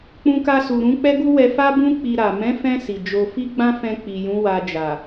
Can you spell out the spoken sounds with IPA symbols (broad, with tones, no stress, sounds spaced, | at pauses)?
k͡p ũ˧ k a˧ s u˨ ɾ ũ˨˦ k͡p ɛ˦ ɡ u˦ w ɛ˧ f a˦ b ũ˦ k͡p i˧ ɾ a˨ m ɛ̃˨˦ f ɛ̃˧ s i˨ d͡ʒ o˧ f i˦ ɡ͡b ã˦ f ɛ̃˧ k͡p i˨ j ũ˨˦ w a˧ d͡ʒ a˨